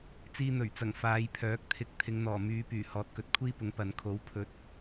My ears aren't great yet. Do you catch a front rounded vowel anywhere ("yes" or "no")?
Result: yes